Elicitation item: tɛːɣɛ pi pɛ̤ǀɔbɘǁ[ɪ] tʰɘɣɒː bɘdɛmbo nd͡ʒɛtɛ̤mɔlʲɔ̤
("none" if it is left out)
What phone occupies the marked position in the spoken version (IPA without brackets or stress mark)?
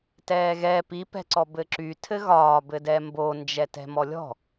y